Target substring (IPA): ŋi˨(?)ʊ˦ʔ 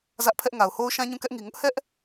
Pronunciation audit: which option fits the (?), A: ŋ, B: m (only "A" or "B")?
A